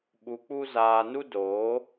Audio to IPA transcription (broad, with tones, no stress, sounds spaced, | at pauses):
ɓ u˧ k͡p u˦ z aː˧ n u˦ d oː˨˦